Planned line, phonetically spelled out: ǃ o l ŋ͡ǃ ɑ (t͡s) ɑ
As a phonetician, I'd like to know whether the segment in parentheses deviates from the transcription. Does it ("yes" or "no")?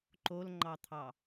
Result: yes